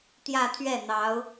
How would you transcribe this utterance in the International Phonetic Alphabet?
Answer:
t̪ j ä˥˧ t̪ʰ ɥ ɛ˥˩ n̪ ɑ˧˥ ʊ̯

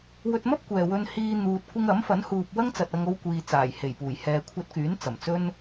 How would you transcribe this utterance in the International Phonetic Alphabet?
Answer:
w ɵ˧ t̚ m ɐ˥ p̚ kʷ ɛː˨ w ɵ˧ n h iː˧ n̪ uː˨ t̚ kʷ ɪ˧ ŋ ɐ˨˥ m f ɐ˨˥ n h uː˨ p̚ w ɐ˥ ŋ t͡s ɐ˨ t̚ ɐ˧ ŋ o˧ w kʷ iː˨ t͡s aː˨˩ j h e˨˩ j p uː˨˩ j h ɛː˨ kʷʰ ɐ˧ t̚ k yː˨˥ n t͡s ɐ˨˩ m t͡s ɵ˥ n

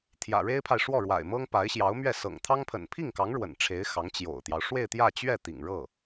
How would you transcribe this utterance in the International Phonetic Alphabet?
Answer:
t̪ʰ j ä̰˨˩ ɻ e˥ ɪ̯ pʰ a˨ ɪ̯ ʂ w ɔ˥˩ ɻ w a̰˨˩ ɪ̯ m ɤ˥ ŋ p a˧˥ ɪ̯ ɕ j ɑ˧˥ ʊ̯ m ɥ ɛ˥˩ s ɤ̰˨˩ ŋ t̪ʰ ɑ˥ ŋ pʰ ə̰˨˩ n pʰ i˥˩ ŋ k ɑ˧˥ ŋ ɻ w ə̰˨˩ n ʈ͡ʂʰ e˧˥ ɪ̯ x ɑ˧˥ ŋ t͡ɕ j o̰˨˩ ʊ̯ t̪ j ɑ˦ ʊ̯ ʂ w e˥˧ ɪ̯ t̪ j ä˥˧ t͡ɕ ɥ ɛ˥˩ t̪ ḭ˨˩ ŋ ɻ ɤ˥˩

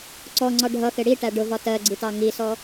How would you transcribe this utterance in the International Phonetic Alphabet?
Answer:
ǀ ɔ ŋ͡ǀ ɒ ɖʱ ʌ x ɪ ɽ i ʈ æ ɖ ʊ v ɒ t ɜ ɡ͡ǀ i t ɑ ŋ i s ɔ

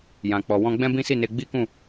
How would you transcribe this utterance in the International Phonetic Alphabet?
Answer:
j ã˨ k͡p ɔ˨ w ɔ̃˧ ɡ͡b ɛ̃˦ b ĩ˦ s i˦˨ n e˧ ɡ͡b i˦ k ũ˦˨

